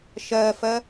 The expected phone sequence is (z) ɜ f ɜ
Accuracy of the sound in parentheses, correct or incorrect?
incorrect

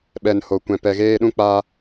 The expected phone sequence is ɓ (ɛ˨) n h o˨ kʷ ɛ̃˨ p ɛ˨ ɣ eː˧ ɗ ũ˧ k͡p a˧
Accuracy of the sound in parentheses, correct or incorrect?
correct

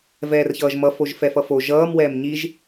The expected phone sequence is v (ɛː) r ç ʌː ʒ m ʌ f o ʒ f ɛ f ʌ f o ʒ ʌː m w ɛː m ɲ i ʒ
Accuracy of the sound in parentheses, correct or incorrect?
correct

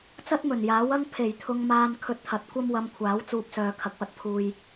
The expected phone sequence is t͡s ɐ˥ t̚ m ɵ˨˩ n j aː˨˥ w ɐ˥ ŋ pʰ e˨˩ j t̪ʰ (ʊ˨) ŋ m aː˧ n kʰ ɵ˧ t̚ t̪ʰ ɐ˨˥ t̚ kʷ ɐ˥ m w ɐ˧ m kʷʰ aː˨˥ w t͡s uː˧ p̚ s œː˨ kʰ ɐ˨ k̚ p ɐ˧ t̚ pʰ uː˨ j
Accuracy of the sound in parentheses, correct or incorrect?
incorrect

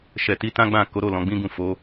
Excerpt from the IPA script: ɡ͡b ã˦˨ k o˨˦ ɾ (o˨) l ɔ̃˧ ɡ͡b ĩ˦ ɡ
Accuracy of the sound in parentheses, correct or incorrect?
incorrect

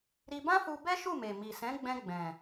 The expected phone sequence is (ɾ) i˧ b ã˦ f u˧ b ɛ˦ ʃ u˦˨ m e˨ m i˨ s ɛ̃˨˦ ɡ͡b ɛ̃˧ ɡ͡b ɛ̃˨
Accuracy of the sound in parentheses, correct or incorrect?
correct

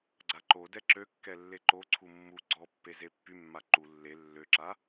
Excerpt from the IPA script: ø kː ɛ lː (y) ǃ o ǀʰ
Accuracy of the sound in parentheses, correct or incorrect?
incorrect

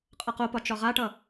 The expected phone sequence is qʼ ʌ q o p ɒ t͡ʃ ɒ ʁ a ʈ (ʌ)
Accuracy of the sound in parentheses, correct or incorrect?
correct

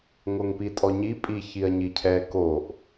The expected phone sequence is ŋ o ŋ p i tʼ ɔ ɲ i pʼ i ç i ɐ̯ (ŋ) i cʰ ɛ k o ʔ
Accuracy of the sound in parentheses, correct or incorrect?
incorrect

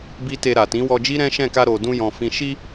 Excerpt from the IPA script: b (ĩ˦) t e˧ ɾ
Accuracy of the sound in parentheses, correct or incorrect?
incorrect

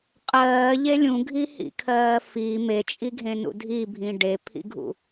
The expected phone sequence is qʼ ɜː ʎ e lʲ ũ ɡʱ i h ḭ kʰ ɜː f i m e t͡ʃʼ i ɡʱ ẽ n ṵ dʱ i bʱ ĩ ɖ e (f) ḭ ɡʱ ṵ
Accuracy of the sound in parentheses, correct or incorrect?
incorrect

